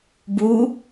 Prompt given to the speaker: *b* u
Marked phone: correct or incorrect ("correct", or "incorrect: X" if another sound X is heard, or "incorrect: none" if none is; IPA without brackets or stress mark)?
correct